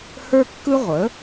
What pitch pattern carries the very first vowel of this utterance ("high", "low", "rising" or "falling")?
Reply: high